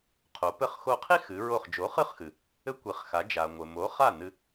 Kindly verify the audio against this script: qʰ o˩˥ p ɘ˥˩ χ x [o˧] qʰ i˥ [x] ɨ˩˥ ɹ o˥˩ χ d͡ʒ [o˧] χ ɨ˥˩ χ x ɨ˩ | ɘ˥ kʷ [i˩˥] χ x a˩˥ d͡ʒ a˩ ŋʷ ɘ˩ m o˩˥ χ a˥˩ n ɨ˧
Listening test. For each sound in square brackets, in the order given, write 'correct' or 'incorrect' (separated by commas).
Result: correct, correct, incorrect, correct